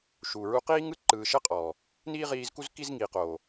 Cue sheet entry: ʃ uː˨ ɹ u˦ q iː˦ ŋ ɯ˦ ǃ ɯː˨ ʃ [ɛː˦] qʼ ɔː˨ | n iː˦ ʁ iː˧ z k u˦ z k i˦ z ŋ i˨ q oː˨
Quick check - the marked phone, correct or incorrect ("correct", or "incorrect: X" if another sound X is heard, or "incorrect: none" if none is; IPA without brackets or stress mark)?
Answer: incorrect: ɛ˦